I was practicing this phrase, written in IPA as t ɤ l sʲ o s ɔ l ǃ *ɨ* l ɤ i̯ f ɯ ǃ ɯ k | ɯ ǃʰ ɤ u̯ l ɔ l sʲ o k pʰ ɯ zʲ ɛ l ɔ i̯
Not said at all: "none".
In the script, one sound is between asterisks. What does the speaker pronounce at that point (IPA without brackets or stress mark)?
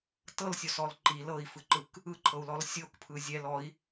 i